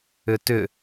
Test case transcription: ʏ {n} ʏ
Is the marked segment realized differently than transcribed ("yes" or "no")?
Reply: yes